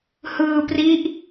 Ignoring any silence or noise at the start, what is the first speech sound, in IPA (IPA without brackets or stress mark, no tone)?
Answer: h